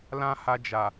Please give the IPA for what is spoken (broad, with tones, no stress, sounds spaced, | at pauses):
l ã˦ h a˧ d͡ʒ a˨